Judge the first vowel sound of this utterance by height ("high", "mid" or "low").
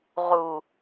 high